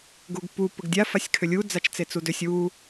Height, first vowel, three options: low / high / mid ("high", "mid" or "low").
high